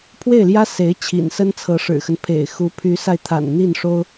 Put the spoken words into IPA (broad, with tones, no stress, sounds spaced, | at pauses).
pʰ w e˥˩ ɪ̯ l j ä˥ s e˧˥ ɪ̯ t͡ɕʰ ḭ˨˩ n s ə˥ n t͡sʰ ɤ˧˥ ʂ ɻ̩˨˩ x ə˦ n pʰ ḛ˨˩ ɪ̯ x u˧˥ pʰ y˧˥ s a˧ ɪ̯ t̪ʰ a̰˨˩ n n̪ i˥˩ n ʂ o˥ ʊ̯